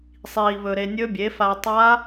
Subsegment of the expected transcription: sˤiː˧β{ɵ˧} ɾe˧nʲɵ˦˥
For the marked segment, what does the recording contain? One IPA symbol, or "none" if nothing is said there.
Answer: ɵ˧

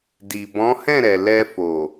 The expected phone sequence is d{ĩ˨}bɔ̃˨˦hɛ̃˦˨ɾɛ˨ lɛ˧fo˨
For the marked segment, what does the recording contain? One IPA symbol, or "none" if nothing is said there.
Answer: i˨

